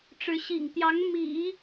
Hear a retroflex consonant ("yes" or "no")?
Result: yes